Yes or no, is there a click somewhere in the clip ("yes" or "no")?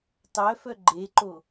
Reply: yes